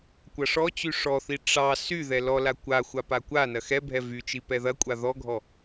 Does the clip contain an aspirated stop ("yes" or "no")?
no